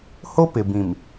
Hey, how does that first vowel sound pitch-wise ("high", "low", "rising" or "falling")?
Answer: high